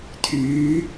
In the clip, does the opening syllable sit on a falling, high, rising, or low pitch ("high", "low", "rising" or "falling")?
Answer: rising